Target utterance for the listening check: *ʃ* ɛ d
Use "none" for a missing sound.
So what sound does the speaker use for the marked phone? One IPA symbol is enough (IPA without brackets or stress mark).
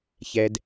ç